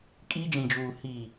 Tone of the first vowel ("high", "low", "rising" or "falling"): high